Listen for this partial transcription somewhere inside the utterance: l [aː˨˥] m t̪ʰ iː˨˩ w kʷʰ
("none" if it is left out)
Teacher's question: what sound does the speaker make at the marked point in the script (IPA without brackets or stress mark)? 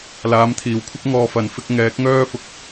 aː˨˥